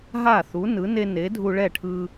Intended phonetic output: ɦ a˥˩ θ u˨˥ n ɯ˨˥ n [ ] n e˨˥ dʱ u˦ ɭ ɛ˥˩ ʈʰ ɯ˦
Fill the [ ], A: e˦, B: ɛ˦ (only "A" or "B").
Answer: A